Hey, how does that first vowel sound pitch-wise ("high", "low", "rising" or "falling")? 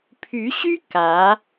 rising